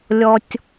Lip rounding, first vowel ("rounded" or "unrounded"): rounded